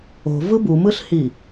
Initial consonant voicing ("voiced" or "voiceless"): voiced